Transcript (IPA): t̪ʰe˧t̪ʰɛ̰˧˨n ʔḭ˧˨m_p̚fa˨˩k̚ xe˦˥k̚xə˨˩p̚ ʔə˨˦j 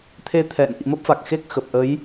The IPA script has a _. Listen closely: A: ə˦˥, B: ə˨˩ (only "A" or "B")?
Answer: A